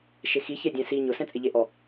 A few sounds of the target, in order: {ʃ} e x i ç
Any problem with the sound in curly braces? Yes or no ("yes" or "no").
no